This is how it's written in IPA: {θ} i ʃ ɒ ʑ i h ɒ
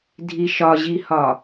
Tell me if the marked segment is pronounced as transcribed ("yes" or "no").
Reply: no